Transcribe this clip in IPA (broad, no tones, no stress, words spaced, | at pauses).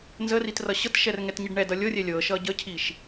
nzərit rʌɕɤtʃɛr ŋɛtɲiɖɳɛdʌ lʲɤrʲɛ lʲɤʃʌ ɟəcʰiʃ